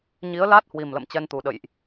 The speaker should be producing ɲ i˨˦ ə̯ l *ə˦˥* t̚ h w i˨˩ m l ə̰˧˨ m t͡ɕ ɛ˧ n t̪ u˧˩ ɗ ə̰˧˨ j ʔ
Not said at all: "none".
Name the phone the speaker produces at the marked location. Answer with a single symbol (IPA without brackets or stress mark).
a˦˥